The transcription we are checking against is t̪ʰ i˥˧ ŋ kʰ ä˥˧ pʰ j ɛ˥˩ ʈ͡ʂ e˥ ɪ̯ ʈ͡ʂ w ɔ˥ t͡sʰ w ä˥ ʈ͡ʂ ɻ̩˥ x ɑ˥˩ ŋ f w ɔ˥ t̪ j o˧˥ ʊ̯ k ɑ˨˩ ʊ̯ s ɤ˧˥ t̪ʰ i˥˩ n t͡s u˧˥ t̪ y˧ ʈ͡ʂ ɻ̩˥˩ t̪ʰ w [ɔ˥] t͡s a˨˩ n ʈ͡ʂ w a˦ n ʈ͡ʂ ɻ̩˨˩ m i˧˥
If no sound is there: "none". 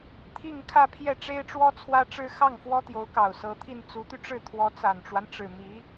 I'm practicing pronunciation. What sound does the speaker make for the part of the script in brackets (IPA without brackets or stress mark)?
ɔ˧˥